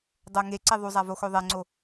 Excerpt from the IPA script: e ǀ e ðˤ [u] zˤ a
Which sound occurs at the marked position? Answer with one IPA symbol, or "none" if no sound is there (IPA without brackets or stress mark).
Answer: u